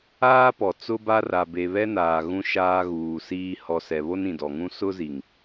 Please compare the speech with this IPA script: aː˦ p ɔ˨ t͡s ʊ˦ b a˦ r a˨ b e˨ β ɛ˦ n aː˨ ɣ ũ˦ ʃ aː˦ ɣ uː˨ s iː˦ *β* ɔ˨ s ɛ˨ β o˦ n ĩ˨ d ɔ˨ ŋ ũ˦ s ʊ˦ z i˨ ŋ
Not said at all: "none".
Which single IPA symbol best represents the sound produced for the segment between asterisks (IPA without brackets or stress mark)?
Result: h